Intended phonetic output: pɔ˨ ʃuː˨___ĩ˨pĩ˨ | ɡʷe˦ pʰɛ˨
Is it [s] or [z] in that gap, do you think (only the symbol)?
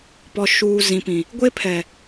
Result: z